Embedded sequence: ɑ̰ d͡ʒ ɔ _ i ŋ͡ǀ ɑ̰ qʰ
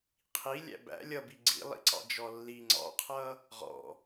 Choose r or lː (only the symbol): lː